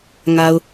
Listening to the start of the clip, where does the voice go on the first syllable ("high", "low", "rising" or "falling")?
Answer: low